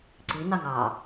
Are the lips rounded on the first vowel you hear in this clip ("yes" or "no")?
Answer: no